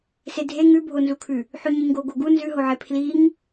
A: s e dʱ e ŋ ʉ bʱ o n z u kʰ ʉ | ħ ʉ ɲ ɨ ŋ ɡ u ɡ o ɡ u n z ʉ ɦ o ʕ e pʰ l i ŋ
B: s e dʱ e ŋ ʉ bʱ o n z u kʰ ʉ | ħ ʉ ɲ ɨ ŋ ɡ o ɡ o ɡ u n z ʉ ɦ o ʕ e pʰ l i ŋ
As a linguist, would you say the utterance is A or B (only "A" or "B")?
B